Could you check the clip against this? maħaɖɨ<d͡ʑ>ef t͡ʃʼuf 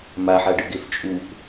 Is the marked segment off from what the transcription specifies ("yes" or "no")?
yes